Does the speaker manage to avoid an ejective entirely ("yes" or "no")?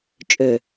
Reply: no